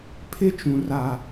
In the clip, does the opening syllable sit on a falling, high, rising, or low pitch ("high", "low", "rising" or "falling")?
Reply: high